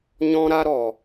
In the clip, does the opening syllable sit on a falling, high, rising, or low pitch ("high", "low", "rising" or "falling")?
high